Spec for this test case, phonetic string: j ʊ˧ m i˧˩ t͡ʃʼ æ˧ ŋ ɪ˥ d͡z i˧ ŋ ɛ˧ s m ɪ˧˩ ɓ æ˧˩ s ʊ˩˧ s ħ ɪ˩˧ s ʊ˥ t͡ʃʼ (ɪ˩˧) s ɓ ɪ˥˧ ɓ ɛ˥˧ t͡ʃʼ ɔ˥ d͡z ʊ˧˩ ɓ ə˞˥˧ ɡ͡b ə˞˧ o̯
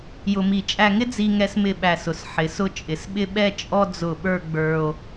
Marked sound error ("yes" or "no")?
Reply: no